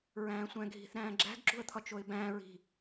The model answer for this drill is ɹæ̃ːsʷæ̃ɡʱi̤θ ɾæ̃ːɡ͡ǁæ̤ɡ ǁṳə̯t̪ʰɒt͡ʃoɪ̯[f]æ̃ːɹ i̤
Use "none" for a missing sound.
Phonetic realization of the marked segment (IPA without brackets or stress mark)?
b